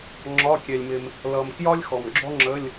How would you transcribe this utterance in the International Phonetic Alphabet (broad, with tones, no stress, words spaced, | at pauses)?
ŋ͡ǁɒ˧˥˧kʲɛ˨lʲmɪ˨m | lʌ˨mkjɒ˥lʲ xɔ˨mɡ͡ǁɔ˥ŋ͡ǁə˧˥˧lʲ